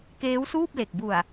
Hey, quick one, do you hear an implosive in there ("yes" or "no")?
no